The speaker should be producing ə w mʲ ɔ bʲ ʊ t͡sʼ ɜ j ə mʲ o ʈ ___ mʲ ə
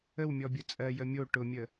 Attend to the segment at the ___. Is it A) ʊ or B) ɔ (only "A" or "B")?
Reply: A